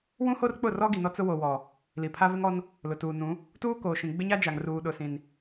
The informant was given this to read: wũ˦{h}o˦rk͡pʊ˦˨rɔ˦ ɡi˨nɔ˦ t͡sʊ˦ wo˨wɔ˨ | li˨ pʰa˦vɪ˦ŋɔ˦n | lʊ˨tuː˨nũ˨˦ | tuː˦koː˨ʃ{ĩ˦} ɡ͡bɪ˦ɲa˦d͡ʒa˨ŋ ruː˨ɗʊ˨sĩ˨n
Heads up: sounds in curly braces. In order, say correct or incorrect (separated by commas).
correct, incorrect